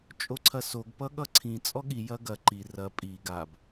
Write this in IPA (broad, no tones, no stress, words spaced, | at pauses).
t͡ʃʼoǀʰɐsoɡ pʌɠʌǀʰĩ t͡sʼɔɠi jɐɡɐ ǃi rɐ pʼi ɡab